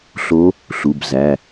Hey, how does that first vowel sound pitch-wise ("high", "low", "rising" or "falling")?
rising